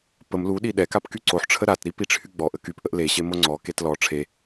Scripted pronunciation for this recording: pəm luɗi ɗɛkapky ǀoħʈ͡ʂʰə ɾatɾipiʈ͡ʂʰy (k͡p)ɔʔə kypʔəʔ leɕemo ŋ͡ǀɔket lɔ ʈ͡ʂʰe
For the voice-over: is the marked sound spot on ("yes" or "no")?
no